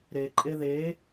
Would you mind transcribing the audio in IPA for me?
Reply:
ɾ e ǃʼ e ð e

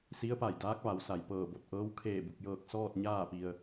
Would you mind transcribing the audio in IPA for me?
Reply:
s i˧˥ ə̯ p a˧˩ j d aː˧˥ k̚ ʋ a˩˧ w s a˩ j p ɤː˧˩ b o˧˩ t̚ ʔ ɤː˧˥ w kʰ eː˧˩ b u˧˩ k̚ j ɤː˧˩ k̚ s ɔː˥˨ t̚ ɲ aː˥˨ p i˧ ə̯

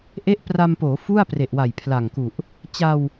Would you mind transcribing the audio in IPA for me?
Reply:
ʔ e˦˥ ʔ p r a˧ m p oː˩˦ f u˥˩ a̯ p r e˨˩ ʔ w a˨˩ j pʰ l a˨˩ ŋ k u˨˩ ʔ | t͡ɕ a˧ w

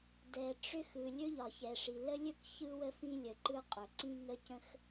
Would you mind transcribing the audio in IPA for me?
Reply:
d ɛ˩ ʈ͡ʂ ʏ˥ x ɯ˩ lʲ ɵ˥ ʎ ɒ˩ ç ɛ˩ ʂ i˩ l ə˥ lʲ ɵ˥ k ç ɯ˥ w ə˥ f ĩ˥ lʲ ə˩ ǃ ɯ˥ qʼ ɵ˩ ǀ ĩ˥ ŋ ə˥ c ə̃˥ x

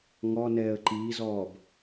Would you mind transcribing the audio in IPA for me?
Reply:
ŋ ɔ n ɛː ə̯ ǃ iː z ɔː b

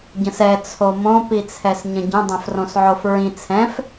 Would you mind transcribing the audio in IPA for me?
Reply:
ɟ ə̃ s ɛ t͡sʰ o m õ p i t͡sʰ ɛ s ɲ ə̃ ɟ ə̃ dˤ ɛ̃ f r õ s ʕ o f ɹ ĩ t͡sʰ ɛ̃ f

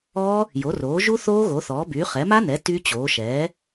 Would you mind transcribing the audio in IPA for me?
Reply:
ɔː˦˥ | j o˩˥ r oː˩˥ ʒ u˦˥ θ oː˦˥ ɣ o˩˥ θ ɔː˩˥ b yː˩˥ χ ɛ˩˥ m a˦˥ n ɛ˩˥ t y˦˥ t͡ɕ oː˩˥ ʃ ɛː˩˥

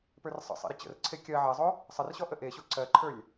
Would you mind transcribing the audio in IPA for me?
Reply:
p ə˞ r sˤ ə̰ sˤ ḛ ɾ ə t͡ɕ ə̰ r ǀʰ e kʲ ɜ ʕ ɜ zˤ o | sˤ ə r ɕ ɔ ʔ ə ʔ e ɕ o ǀ ɜ ǃʰ ə˞ lʲ

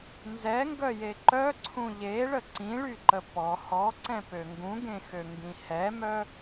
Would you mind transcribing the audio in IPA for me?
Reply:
n z ɛ ŋ ɡ œ j e ǃ œ ǀʰ ũ ʎ e ɭ ə ǀ ĩ ɭ y ǃ ə p ɔ h ɔ ǀ ɛ̃ p ø ŋ ɡ ũ ɡ ẽ x ø ŋ ɡ ĩ h ɛ m œ

